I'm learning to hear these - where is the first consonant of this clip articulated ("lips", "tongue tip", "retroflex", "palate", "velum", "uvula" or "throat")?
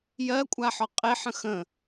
palate